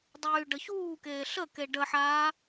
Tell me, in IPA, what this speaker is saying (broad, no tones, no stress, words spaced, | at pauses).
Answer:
dˤyːɖəçuːkeː ɬəke ɖəħaː